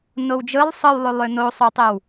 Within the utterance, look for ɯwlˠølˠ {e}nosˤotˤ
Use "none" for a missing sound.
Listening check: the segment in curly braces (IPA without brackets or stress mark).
ø